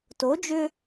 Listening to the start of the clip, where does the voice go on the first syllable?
rising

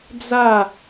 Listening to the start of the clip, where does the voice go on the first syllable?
falling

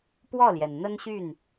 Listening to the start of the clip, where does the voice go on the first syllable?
falling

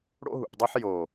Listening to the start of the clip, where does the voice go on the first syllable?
high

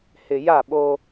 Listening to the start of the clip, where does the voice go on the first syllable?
low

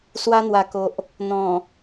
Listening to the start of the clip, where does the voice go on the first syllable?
high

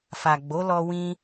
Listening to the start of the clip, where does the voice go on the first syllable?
low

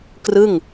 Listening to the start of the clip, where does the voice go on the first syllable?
falling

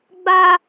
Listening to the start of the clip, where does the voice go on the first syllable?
high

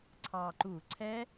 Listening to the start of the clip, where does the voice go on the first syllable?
low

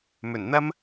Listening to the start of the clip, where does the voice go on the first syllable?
low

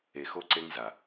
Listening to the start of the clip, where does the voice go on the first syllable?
low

